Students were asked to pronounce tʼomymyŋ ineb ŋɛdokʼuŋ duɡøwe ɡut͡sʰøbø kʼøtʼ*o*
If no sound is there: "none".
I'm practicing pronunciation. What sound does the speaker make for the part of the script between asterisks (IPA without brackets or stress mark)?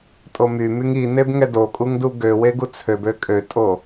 o